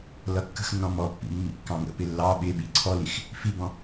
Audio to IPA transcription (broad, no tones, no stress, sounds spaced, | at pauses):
l ʌ kː ə̤ x nː ɔ̃ m ɔ pː ḭ mː ḭ kː ɑ̃ ŋ ə̰ p ɪ lː ɑ ɓ ɪ ɓ i ǀʰ ɔ l i x | f i b ɔ̃